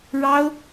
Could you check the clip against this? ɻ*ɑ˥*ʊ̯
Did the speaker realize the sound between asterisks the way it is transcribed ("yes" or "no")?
yes